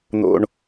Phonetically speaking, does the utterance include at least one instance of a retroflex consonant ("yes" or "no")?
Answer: yes